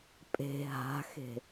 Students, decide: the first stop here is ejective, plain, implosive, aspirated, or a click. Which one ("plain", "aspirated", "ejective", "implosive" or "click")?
ejective